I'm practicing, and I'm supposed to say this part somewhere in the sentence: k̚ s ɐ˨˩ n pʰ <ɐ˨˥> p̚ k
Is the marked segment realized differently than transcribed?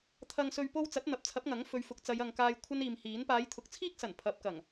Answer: no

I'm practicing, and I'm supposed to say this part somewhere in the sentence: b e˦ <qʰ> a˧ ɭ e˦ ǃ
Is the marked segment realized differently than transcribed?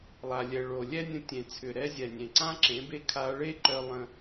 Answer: yes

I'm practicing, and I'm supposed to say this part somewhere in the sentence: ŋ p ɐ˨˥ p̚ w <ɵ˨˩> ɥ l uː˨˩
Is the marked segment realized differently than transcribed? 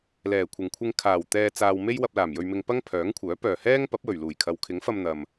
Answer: no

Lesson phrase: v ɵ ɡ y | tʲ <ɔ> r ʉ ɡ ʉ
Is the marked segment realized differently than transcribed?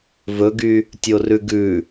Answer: yes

